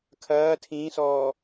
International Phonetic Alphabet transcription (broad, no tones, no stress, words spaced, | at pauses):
kʰɐː tʰĩːsɔː